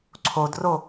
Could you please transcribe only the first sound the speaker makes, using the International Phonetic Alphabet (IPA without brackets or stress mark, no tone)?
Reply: ǀʰ